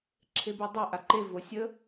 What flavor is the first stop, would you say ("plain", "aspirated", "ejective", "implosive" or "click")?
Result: click